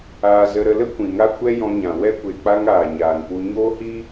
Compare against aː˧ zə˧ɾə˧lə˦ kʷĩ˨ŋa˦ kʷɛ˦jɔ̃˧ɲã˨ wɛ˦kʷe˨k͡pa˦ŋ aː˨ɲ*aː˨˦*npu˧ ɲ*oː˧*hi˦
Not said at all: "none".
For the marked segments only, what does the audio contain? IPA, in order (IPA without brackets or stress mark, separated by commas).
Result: aː˨, oː˦